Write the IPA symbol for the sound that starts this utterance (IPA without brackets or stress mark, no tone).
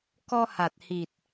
k